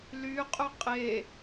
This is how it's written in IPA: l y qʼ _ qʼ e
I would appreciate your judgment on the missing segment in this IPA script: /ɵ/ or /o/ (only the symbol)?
ɵ